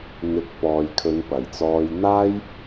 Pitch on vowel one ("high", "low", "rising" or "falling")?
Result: low